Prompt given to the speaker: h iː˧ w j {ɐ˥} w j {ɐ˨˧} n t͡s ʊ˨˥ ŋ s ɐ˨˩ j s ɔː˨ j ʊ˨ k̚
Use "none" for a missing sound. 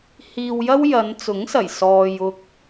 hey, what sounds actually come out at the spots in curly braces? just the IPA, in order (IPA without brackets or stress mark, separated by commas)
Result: ɐ˥, ɐ˨˧